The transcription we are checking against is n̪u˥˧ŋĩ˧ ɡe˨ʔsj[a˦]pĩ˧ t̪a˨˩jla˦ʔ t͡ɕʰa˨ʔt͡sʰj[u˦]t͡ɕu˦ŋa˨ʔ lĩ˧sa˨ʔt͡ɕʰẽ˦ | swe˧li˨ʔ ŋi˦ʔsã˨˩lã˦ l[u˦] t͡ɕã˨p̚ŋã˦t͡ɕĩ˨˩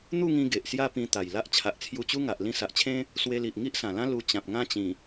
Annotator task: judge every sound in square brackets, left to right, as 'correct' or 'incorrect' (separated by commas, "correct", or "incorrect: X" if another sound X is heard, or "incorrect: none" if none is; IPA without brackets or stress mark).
incorrect: a˥˧, incorrect: u˧, incorrect: u˧